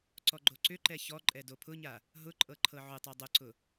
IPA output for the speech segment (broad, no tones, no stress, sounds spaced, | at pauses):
ǀ ɔ ɡ͡ǃ o ǀ ʏ ǃ ɛ ç ɔ ǃʼ ɛ d o pʰ ʊ ɲ a | ɦ ʊ ǃʼ ɤ ǃʰ ɤ ʕ ʊ tˤ ɤ dˤ ʊ ǀ ʊ